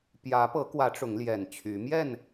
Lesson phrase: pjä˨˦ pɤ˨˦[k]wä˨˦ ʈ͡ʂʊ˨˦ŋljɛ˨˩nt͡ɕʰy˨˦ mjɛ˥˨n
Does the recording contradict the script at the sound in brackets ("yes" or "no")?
no